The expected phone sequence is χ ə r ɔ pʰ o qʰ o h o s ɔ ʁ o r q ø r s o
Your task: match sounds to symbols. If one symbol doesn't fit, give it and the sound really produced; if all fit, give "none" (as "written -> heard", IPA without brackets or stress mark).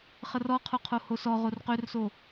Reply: pʰ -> qʰ